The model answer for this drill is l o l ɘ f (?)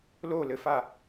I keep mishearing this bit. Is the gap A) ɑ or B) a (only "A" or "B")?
B